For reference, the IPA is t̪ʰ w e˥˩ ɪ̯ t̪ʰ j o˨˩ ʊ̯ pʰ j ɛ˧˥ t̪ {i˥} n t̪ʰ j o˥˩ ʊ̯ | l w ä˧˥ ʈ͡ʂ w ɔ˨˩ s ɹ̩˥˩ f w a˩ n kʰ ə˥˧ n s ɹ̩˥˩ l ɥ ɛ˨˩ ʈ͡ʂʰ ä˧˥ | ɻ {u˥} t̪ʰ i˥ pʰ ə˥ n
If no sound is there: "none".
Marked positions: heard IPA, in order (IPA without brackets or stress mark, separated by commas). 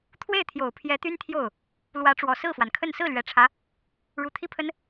y˥, u˨˩